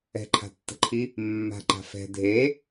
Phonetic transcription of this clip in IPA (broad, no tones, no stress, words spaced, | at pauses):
ɛ̤ǃʰa̤tːə̤ǃʰi | mːa̤ǃa̤ fɛ̤ dʱe